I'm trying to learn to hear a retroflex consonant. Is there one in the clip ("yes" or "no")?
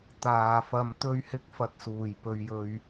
no